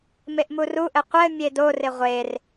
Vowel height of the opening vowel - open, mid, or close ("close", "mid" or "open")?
mid